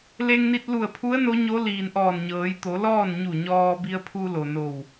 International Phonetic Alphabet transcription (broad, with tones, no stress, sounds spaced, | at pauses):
l e˧ ŋ n i˧ t̚ l u˧˩ ə̯ pʰ u˧˥ ə̯ n o˧˥ ɲ o˧˥ l iː˩ n ʔ ɔː˧˩ n ɲ ɤː˩˧ j t̪ o˩˧ l ɔː˥˨ n ɲ u˧˩ ɲ ɔː˧ b i˧ ə̯ pʰ u˧ l o˩ n o˧˩ w